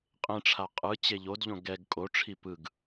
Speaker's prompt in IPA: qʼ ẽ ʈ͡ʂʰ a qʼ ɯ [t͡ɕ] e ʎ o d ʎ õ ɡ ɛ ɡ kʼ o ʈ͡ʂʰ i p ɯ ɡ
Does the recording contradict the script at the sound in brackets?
no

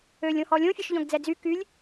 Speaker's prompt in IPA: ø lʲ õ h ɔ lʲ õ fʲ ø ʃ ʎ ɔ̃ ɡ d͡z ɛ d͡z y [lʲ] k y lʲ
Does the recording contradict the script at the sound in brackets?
yes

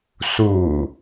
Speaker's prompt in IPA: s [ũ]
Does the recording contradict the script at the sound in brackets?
yes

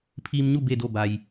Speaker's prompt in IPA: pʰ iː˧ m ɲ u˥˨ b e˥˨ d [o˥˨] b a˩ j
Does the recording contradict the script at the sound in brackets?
no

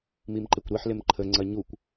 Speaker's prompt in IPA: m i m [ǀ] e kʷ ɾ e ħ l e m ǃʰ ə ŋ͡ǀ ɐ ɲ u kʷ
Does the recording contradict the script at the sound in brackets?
yes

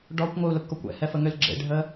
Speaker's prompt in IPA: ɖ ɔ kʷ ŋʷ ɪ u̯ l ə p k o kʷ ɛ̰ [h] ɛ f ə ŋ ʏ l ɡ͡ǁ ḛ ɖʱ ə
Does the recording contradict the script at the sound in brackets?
no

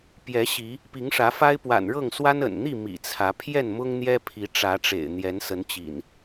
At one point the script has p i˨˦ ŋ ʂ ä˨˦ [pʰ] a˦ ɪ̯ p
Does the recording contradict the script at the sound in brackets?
yes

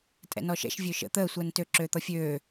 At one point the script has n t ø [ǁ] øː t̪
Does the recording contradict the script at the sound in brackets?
no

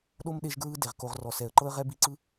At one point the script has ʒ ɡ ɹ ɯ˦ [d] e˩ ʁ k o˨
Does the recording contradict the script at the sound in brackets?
no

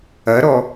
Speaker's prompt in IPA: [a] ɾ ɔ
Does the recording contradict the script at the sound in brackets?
yes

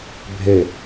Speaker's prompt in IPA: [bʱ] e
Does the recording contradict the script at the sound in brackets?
no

